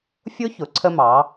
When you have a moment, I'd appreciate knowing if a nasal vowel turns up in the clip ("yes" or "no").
no